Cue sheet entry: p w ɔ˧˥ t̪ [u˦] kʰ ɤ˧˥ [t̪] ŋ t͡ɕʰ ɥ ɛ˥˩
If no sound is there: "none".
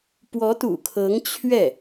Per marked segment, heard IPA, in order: ṵ˨˩, none

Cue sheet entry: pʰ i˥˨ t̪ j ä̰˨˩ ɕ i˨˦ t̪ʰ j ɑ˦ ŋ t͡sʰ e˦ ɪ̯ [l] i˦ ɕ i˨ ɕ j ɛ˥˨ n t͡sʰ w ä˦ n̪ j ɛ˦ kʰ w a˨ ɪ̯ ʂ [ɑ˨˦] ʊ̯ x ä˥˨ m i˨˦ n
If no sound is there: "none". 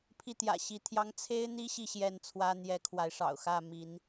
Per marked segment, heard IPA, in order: n̪, ɑ̰˨˩

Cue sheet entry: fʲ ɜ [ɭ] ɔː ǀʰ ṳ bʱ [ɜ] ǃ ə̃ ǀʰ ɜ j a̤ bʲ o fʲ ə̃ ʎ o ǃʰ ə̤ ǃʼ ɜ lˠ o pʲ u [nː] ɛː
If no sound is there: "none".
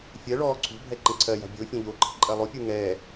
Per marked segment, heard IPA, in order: ɭ, ɛ, ŋ

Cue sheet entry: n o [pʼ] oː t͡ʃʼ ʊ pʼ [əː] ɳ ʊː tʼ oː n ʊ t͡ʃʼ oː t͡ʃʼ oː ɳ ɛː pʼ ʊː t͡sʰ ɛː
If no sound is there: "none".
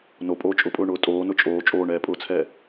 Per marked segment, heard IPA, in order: pʼ, ʊː

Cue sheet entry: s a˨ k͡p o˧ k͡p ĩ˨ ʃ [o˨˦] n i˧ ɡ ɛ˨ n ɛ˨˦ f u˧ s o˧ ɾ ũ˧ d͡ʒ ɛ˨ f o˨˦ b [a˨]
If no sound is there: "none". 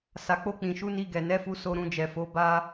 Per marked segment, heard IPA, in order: u˨˦, a˦

